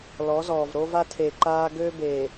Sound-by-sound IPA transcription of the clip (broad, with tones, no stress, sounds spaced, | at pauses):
l ɔ˨˦ z ɔː˨ v ɾ o˦ v a˦ tʰ eː˨ ǃ aː˦ ɡ øː˦ b eː˨